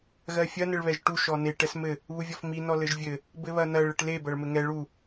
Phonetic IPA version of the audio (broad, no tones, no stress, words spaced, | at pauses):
ɣɜfʲɐ nɘɭβɛʒʈu ʃɔne ʈɛsmɘ | βuvʲɔfmi nɔlɘʒvʲɘ | bɘβɐnɐɭ ɘʈle bɐɭmɘŋɛ ɭu